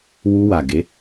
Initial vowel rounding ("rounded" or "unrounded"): rounded